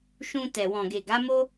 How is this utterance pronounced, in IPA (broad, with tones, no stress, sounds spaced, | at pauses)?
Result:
ʃ ũ˧ t ɛ˨ w ɔ̃˨ ɡ e˨ ɡ a˨˦ m o˦